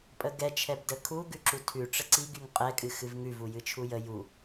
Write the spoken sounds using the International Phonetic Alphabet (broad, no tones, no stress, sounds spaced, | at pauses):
pʼ ə ɡ ɛ t͡ʃʰ ɛ b d ə kʰ u ɡ ʉ ǁ u tʰ ʉ ʈ͡ʂ ə ǀ i ɡ y ŋ qʼ ɛ kʼ ɨ x ɨ v ŋ ʉ v u j ɨ t͡ʃʰ u j ə j u